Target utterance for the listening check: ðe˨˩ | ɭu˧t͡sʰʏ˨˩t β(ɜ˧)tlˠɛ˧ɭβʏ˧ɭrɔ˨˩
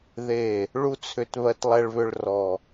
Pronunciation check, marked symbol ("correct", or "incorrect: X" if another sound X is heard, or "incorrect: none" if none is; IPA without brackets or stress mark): correct